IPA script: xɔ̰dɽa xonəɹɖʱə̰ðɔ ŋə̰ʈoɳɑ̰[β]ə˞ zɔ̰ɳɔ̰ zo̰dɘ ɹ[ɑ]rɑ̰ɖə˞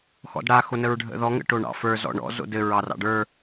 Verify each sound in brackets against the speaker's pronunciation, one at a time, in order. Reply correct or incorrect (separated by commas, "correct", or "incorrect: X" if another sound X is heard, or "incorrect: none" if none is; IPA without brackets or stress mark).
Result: incorrect: f, correct